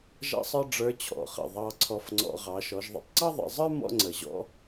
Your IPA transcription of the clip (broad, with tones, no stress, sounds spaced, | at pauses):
ʒ ɑ̰˥ sˤ ə˞˥ ɖ͡ʐ ə˞˧˥ t͡ɕʰ ɔ̰˩ χ ə̰˩ ðˤ ɑ˧ ǀʰ ɔ˧ f ŋ͡ǀ ɔ̰˧ ʁ ɑ˩˧ ʃ ɔ˩˧ ʒ ðˤ ə̰˧ tˤ ǀ ɑ˥ ðˤ ə̰˩˧ zˤ ə˞˥ m ɔ̰˧ ŋ͡ǀ ə˩ ʑ ɔ̰˧